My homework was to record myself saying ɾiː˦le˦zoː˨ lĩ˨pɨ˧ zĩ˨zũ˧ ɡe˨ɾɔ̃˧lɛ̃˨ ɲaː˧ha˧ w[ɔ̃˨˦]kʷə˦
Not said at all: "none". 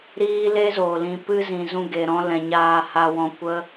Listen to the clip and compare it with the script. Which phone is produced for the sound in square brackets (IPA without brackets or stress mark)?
ɔ̃˧